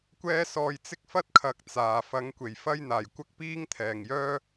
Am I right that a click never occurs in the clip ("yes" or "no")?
yes